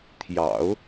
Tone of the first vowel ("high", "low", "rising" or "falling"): low